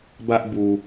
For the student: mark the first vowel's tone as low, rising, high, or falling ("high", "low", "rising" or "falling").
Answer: high